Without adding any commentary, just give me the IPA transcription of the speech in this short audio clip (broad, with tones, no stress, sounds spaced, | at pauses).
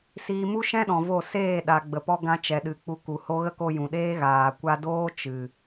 s iː˧ m u˦ ʃ ɛ̃˦ ɗ ɔ̃˨ v o˦˨ s eː˦˨ ɗ a˨ ɡ͡b ə˨ p ɔ˧ ɡ ã˧ t͡ʃ ɛ˨ ɗ ɨ˨ k͡p u˧ k u˨ h o˦ ɣ ə˦ k o˧ j ũ˨ ɗ eː˦ ɣ aː˨ kʷ a˧ d oː˦ t͡ʃ ɨ˨